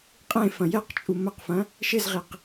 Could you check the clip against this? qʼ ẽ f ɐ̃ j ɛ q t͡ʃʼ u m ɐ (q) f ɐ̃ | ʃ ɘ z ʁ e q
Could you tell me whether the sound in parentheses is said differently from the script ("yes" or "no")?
no